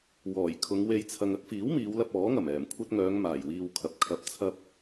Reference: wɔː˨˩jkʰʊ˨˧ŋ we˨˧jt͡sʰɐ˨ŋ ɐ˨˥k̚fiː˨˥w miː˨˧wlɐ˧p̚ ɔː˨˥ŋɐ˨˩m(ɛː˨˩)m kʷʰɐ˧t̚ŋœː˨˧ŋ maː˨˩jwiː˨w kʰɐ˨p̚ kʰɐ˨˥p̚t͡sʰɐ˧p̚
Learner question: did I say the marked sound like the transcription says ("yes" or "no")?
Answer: yes